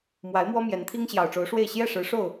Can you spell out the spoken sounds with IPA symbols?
m w a˨˦ ɪ̯ m w ɔ˦ m j ɛ˨˦ n t̪ʰ i˦ ŋ ɕ j ɑ˨˩ ʊ̯ ʈ͡ʂ o˨˦ ʊ̯ ʂ w e˥˨ ɪ̯ ɕ j ɛ˥˨ ʂ ɻ̩˨˦ ʂ o˥˨ ʊ̯

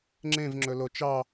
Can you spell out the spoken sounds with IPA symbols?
ŋ͡ǁ ẽ v ŋ͡ǁ ɵ l o t͡ʃ ɑ

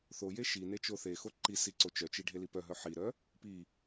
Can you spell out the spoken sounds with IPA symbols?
θ o j e ʃ i n e t͡ʃ o θ e x o ǃ i s i ǀ o t͡ʃ œ t͡ʃ i ɖʱ e l i p œ ɦ œ ħ i ɾ œ | p i

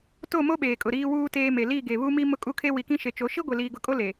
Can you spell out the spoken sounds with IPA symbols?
t o˦˨ m o˦ ɓ eː˨ kʼ ʊ˨ ɾ iː˦ w uː˦ t eː˦ m e˨ l i˦˨ ɡ e˨ β u˦ m i˦ m ʊ˦ kʼ u˦ kʰ e˦ w i˨ k ĩ˦ ʃ e˨ t͡ʃ o˨˦ ʃ i˦ ɡʷ e˨ l iː˨ ɡ ʊ˨ kʼ o˦ l e˨

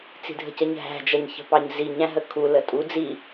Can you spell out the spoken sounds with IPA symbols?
t͡s i̤ dʱ ə̤ c ə ɲ ɦ æ̤ d͡ʒ ʌ ɲ ç ə̤ p ɑ ɲ z i ɲ æ̃ ɦ ə kʰ u l ə tʼ u d͡z i

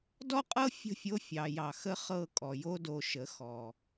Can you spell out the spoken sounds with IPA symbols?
d ɔ˦ qʼ ɤ˦ fʲ ə̤˦˨ fʲ o˦ fʲ ɑ˨ j ɑ˨ x ə˦ χ ɤ˦˨ kʼ ɔ˨ j o˦ d o˨ ʃ ə˨˦ x ɔ˨

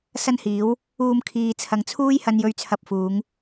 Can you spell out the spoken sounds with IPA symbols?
s ɐ˥ n h iː˨˥ w | uː˧ m kʰ iː˨ t͡sʰ ɐ˨ ŋ t͡sʰ uː˥ j h ɐ˧ n j ɵ˨˧ ɥ t͡sʰ ɐ˨ p̚ f uː˨˧ ŋ

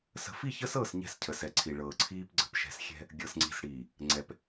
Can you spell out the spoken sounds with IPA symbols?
s ə̤˦ f i˦˨ ç əː˦ s ɤː˦˨ s ɲ ɛ̤˦˨ s cʰ ə˨ s ɛ˨ ǀʰ i˨ ɭ ɤː˨ ǀʰ iː˦ p ɡ͡ǀ ə̤˨ p ʃ ɛ̤˦ s xʲ ɛ̤˦ | ɡʲ ɤ˨ s ŋ͡ǀ i̤˨ s ɽ iː˨ | ŋ͡ǀ ɛ˨ p

